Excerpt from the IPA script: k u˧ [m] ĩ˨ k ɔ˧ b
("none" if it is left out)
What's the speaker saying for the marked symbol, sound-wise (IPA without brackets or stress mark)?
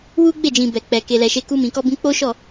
m